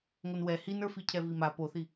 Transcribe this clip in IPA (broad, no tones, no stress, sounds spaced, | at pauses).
ŋ o n w ɛ h i n ə˞ f i cʰ ɛ v i m a p o θ i